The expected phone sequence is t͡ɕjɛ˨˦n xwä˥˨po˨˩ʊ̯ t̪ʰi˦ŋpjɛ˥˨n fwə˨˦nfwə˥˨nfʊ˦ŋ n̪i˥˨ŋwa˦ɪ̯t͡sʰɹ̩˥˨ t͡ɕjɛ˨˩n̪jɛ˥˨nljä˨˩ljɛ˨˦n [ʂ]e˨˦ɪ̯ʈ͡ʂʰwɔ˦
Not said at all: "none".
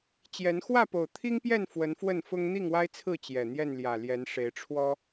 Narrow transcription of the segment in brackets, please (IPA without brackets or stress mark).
ʂ